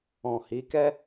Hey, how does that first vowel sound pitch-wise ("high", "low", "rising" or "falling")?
low